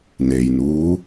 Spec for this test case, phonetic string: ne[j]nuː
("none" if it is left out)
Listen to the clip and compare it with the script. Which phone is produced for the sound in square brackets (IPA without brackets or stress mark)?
j